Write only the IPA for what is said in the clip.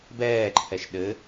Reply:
b ɛː ǃʰ ɛ ʃ ɗ ɘ

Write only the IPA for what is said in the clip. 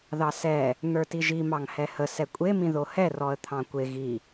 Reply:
ð ɑ s ɛ | n̪ ə˞ t i ʒ i m ɑ ŋ h ɛ h ə s ɛ kʷʼ e m ĩ ð o h ɛ r ɔ ə̯ t̪ʰ ɑ̃ kʷ e ɣ i

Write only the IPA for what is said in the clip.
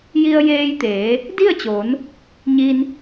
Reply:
j i˧ ə̯ j eː˧ j t̪ eː˩˧ | d i˥˨ ə̯ t͡ɕ oː˩˧ n | ɲ i˧ n

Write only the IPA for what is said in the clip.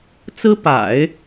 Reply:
t͡s ɹ̩˥ p a̰˨˩˦ ɪ̯

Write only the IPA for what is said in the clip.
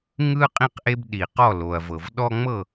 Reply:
ŋ ɯ˦ qʼ ĩ˦ q ʔ e˦ b ɗ i˩ q ɔ˥˩ l o˩ ɐ̯ v ɤ˩ v ɗ ɔ˦ ŋ͡m ɤ˥˩

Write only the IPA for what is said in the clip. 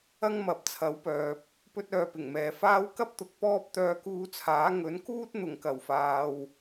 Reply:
ɐ˥ ŋ m ɐ˨˥ p̚ t͡sʰ ɐ˨˥ w p œː˨ p̚ | p ɵ˥ t̚ œː˧ p ɪ˨˩ ŋ m ɛː˨ f aː˥ w k ɐ˥ p̚ t̪ ʊ˨ k̚ p ɔː˥ p̚ t̪ œː˧ k uː˧ t͡sʰ aː˨˥ ŋ ɵ˨˥ n k uː˥ t̚ n̪ ʊ˨˩ ŋ k ɐ˨˩ w f aː˨ w

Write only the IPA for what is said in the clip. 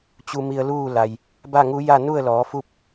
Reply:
t͡ɕ u˧ m i˧ ə̯ l uː˥˨ l a˩ j | b a˥˨ ŋ u˧˥ j a˥˨ n u˥˨ ə̯ l ɔː˩˧ f u˥˨ p̚

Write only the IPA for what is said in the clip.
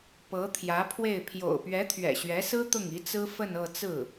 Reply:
p ɤ˧˥ t̪ʰ j ä˧˥ pʰ w e˥˩ ɪ̯ pʰ j o̰˨˩ ʊ̯ p ɥ ɛ˧˥ t̪ʰ ɥ ɛ̰˨˩ ɕ ɥ ɛ˧˥ s ɹ̩˥ t̪ ʊ˥˩ ŋ i˧˥ t͡s ɹ̩˥ f ə˥˧ n ɤ˥˧ t͡s ɹ̩˥˩

